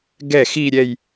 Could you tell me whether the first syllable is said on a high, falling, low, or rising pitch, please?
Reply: falling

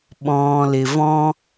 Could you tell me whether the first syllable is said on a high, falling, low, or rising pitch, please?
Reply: low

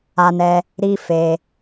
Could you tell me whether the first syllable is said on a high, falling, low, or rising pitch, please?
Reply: high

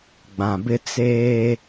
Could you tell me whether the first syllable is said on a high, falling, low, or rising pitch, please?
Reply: low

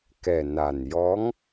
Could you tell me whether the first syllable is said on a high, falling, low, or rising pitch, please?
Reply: low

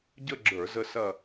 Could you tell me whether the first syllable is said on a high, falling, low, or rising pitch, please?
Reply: falling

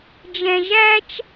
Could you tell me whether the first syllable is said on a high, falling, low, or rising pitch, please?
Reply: low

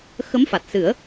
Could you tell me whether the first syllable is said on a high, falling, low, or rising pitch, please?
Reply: rising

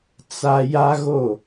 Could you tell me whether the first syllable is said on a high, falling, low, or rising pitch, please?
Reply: high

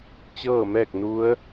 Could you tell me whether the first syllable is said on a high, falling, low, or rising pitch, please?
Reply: falling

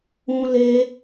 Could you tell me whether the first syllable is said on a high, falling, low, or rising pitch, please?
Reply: high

